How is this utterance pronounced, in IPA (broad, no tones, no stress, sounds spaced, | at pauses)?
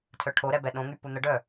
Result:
tʰ œ ʈʰ o ɾ ɛ b ɛ ɗ õ ŋ y p u n̪ ə ɖ œ